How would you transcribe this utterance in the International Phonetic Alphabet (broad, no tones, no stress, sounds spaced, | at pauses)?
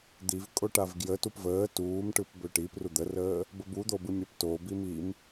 d̪ i v kʼ o ʈ a v ɡ j ə t u p v əː t uː m ʈ ɯ p b ø ʈ i p r u d̪ ə r əː | b ə b u d̪ o b ɯ mʲ a p t o b i m i m